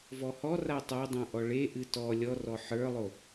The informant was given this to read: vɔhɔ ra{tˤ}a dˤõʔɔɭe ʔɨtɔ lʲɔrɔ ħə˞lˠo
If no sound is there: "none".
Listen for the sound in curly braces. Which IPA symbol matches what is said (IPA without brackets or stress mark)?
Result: tˤ